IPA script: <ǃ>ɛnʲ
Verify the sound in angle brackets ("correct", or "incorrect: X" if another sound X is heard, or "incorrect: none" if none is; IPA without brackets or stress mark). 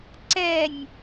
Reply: incorrect: ǀ